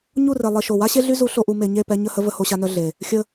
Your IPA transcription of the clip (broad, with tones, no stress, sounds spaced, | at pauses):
ɲ u˦˨ r e˨ lˠ i˨ ʃ o˨ w a˦ ɕ e˦ ɮ y˦ z u˨˦ ɬ o˨ ʔ u˨ m e˨ ɲ e˦˨ p ɛ˦ ɲ ə˦˨ h ə˦ v ə˦ h o˦ ɕ a˦ n œ˦ ɮ e˨ | xʲ ə˦